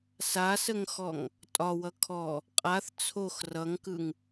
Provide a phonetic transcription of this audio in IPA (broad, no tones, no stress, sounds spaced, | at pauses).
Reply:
s a s ə ŋ x ɔ ŋ | tʼ ɒ w ʌ kʰ ɔ | qʼ a θ t͡sʰ o x r ʌ ŋ k ɯ ŋ